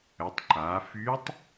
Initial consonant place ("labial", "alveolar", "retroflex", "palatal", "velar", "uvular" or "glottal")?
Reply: alveolar